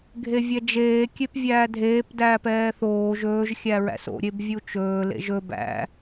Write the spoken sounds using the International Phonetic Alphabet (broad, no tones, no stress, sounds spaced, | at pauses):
ɡʱ e vʲ ɛ d͡ʒ eː kʲ e p vʲ æː dʱ eː p d æː p ɛː θ oː ʒ ɵː ʒ xʲ æ ɹ æ̰ s o̰ ɾʲ e b vʲ u t͡ʃ ɵː l ḛ ʒ ɵ b æ̰